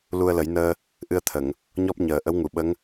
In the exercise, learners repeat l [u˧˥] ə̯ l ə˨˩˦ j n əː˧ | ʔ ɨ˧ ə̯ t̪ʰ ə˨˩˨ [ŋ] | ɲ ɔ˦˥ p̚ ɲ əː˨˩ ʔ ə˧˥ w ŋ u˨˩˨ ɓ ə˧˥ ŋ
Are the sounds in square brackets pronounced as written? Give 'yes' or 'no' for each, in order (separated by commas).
no, yes